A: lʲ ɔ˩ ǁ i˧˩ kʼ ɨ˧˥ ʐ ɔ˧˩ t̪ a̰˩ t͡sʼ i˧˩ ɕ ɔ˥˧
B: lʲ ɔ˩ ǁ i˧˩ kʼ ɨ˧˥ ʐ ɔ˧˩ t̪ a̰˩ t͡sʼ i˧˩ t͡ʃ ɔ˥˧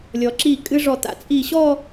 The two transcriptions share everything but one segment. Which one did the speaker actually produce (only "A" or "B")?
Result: A